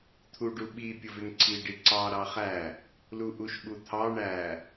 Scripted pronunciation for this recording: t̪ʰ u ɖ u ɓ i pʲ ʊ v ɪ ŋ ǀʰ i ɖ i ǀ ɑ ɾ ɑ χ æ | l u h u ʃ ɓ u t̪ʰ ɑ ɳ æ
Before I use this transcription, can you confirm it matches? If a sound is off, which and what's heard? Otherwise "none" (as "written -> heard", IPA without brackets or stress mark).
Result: h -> ʔ